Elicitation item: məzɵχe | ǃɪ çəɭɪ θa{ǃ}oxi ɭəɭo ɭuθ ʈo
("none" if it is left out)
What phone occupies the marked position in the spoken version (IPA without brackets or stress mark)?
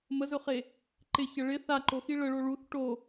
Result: ǃ